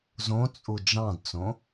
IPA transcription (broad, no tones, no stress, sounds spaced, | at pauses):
z õ t͡sʼ u d͡ʒ ɑ̃ d t͡s õ